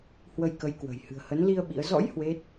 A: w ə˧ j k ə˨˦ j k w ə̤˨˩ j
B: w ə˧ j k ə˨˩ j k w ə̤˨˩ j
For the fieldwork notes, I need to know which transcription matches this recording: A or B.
A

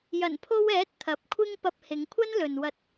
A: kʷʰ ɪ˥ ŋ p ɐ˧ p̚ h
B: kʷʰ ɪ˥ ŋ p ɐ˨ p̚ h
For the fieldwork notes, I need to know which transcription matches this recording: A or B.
A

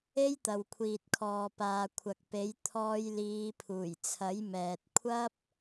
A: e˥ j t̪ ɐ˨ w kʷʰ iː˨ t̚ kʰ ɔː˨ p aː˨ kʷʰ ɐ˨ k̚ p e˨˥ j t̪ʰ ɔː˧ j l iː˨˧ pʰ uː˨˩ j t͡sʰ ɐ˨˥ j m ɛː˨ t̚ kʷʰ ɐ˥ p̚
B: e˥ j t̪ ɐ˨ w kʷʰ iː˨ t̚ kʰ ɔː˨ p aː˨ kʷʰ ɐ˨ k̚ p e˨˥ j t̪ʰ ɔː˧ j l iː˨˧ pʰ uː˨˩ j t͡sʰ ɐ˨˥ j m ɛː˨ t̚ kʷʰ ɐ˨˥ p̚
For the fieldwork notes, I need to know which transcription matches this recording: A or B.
A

